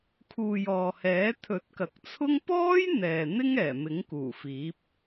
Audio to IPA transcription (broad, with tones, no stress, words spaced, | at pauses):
kʰuː˨jɔː˨hɛː˨˥ t̪ʰɵ˨˥t̚kɐ˨k̚t͡sʰʊ˥ŋ pɔː˥j n̪ɛː˨n̪ɪ˥ŋ ɛː˨˩mɪ˨˥ŋkuː˨˩fiː˨˥p̚